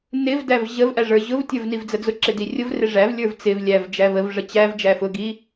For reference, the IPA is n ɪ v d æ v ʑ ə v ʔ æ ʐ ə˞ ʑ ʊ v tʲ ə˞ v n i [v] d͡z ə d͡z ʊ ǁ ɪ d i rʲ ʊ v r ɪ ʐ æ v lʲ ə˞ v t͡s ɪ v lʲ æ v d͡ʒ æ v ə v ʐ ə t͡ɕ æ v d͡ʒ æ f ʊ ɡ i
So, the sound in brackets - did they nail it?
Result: yes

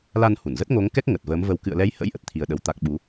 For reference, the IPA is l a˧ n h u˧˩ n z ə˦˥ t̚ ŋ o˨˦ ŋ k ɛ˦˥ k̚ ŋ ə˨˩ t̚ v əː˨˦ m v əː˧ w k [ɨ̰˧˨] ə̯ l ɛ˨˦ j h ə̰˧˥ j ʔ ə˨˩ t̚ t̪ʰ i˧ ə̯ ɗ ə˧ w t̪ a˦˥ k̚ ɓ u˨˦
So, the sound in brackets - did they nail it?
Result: yes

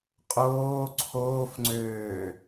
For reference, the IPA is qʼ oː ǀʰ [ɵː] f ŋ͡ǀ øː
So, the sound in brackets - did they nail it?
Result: no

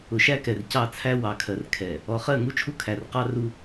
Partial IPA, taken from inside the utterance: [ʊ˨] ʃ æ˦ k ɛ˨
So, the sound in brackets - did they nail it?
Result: yes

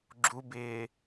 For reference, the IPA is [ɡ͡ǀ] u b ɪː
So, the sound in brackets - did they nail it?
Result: no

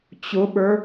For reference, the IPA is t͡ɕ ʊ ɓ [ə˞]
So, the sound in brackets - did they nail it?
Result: yes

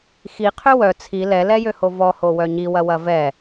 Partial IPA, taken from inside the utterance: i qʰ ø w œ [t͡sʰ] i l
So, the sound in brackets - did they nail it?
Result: yes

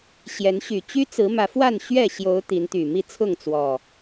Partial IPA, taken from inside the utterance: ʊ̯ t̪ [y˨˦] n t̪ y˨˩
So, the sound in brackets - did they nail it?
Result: no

